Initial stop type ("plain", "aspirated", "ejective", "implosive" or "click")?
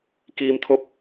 plain